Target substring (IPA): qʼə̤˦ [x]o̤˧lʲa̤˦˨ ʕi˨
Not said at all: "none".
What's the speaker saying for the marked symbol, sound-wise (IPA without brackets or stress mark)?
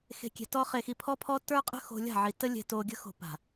x